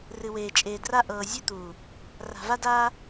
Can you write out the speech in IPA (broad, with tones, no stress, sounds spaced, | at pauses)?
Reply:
r ɨ˨ w eː˨ t͡ʃʼ eː˨ d r a˦ ʔ ɤː˨ zʲ e˦ t̪ uː˨ | r a̤˨ v a˦ d aː˦